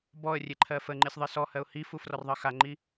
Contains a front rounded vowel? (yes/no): no